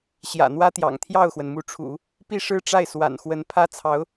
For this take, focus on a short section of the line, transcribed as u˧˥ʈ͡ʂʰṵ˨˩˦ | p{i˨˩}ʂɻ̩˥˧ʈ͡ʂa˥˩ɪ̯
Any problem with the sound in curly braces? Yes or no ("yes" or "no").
yes